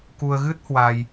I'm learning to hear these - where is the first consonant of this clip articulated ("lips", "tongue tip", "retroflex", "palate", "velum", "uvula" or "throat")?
velum